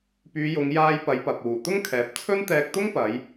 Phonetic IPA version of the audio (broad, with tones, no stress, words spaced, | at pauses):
pyː˨˧jʊ˨˧ŋ jaː˧jpɐ˨˧jpɐ˨p̚ wuː˨˩t̪ʊ˥ŋkʰɛː˨˥p̚ t͡sʰɵ˥nt̪ɛː˧k̚ t̪ʊ˥ŋpɐ˨˧j